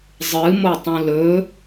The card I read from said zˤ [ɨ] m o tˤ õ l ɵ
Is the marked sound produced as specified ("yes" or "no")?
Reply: yes